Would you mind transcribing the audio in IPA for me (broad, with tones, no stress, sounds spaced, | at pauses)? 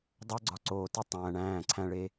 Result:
dˤ o˦ ɡ͡ǀ ɒ˨ ǀ oː˨ t i˦ tˤ æ̃ː˨ ɳ æ̃ː˦˨ ǀʰ æ̃˦ ɭ e˦